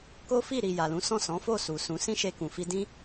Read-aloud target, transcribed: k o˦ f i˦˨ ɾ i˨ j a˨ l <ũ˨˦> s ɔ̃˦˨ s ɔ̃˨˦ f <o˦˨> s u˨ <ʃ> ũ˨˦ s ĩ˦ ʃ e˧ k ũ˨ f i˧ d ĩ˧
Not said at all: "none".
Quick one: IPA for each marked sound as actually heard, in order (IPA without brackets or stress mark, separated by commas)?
ũ˨˦, o˦˨, s